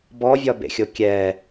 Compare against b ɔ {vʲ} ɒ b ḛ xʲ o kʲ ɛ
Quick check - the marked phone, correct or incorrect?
correct